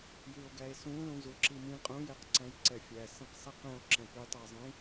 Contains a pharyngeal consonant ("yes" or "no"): no